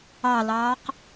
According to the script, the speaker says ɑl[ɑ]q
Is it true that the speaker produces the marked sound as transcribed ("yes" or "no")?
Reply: no